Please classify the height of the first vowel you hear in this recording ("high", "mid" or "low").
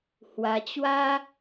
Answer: low